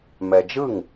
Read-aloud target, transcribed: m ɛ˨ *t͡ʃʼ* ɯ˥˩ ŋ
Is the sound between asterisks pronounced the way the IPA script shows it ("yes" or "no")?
no